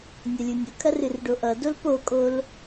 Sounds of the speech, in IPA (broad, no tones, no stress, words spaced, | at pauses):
nʲʌlʲunʲʊkʰɐr ɨrɖoʔʌdol pokʼol